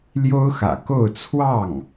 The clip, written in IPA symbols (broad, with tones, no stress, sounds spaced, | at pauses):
l j o˥ ʊ̯ x ä̰˨˩ k o˥˧ ʊ̯ t͡sʰ w ɑ˥˩ ŋ